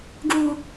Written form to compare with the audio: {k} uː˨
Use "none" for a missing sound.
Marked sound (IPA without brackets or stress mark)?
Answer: ɡ